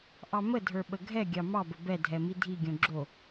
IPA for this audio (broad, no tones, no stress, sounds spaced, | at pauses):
ʔ ɑ m ə dʱ ə˞ ɓ ə ɡʱ ɛ ɡʲ ɑ m ɑ b ə b ɛ dʱ ɛ m i dʱ i ɡʲ õ ɡ͡ǁ o